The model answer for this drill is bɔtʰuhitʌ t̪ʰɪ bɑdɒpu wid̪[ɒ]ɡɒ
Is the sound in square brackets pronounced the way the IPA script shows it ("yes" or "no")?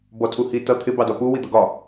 no